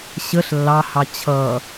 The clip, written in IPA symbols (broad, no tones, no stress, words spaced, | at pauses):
ɕəɬ lːɑhɑ t͡ɕʰʌ